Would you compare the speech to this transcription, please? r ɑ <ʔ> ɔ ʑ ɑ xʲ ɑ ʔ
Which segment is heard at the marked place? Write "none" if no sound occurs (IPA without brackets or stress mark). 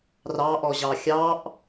ʔ